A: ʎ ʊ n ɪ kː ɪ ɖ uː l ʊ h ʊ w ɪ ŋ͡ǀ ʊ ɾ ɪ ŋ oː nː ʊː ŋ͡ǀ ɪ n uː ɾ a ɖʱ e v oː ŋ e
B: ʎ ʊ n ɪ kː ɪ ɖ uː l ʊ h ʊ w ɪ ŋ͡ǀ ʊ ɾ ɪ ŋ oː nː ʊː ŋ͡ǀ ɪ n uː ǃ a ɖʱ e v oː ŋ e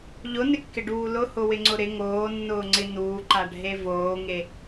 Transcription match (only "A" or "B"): B